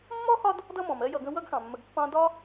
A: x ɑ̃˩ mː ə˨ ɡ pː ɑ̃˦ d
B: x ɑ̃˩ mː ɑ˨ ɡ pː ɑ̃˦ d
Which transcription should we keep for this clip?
A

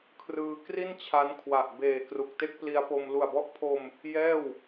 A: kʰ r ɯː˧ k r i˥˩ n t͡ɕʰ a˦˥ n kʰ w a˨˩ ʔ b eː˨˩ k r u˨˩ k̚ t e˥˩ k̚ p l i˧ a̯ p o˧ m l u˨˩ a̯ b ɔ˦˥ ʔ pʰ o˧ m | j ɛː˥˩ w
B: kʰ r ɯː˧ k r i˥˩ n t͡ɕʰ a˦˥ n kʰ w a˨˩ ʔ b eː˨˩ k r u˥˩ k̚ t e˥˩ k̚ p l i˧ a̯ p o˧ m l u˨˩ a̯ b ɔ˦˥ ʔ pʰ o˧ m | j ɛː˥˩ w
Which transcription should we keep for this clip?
A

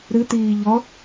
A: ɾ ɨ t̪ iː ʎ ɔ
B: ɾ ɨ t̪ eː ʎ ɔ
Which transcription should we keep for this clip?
A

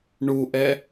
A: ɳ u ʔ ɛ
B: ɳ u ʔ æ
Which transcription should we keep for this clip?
A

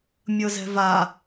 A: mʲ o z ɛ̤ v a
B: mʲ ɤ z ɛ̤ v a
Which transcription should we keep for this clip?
B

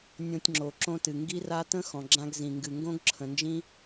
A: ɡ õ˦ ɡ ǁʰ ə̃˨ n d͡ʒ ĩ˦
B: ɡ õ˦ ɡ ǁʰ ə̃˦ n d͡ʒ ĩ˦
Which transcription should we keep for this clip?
A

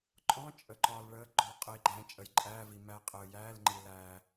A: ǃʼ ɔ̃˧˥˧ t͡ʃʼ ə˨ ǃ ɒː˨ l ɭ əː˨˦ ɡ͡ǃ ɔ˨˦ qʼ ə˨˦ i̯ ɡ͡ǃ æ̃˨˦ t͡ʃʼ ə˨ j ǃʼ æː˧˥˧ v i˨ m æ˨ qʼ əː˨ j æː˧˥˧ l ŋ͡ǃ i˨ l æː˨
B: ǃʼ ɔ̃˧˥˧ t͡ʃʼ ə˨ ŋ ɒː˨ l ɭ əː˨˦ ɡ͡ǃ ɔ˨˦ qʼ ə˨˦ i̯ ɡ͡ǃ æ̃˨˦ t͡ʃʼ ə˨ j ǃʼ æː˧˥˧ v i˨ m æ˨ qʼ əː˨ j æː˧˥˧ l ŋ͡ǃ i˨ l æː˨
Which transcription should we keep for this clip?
A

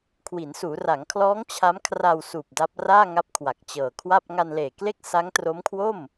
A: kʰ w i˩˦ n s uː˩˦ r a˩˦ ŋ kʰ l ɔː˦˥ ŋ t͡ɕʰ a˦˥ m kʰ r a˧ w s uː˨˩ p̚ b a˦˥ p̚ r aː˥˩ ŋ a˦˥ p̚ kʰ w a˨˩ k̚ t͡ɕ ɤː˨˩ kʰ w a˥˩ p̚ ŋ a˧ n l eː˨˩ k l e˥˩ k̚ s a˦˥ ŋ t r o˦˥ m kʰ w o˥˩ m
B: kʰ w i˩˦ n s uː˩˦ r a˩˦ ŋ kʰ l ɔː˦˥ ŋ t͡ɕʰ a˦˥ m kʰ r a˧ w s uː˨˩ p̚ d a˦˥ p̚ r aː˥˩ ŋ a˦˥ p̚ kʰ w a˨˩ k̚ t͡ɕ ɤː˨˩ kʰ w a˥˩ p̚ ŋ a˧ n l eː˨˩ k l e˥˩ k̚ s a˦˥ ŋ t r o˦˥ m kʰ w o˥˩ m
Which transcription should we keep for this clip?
B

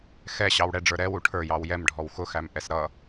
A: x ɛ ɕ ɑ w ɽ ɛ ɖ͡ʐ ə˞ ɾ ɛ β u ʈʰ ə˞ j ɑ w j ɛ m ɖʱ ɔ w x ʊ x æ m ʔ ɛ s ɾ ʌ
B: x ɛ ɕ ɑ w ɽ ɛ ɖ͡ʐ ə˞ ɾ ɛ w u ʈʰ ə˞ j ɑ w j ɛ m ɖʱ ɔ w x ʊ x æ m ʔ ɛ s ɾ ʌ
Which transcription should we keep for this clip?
B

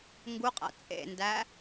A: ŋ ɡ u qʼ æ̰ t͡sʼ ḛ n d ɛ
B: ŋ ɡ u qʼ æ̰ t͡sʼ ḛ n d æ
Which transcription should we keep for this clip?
B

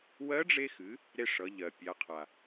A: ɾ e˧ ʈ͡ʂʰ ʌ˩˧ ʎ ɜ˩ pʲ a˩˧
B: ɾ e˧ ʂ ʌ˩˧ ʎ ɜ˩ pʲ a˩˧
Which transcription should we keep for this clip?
B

